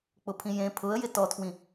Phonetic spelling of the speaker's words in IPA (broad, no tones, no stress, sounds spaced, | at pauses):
k͡p ʊ pʰ ĩ j ẽ pʰ ʊ ə̯ j ɪ t ɔ tʰ w ĩ